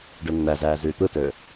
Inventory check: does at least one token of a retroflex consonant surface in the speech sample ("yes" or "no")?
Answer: yes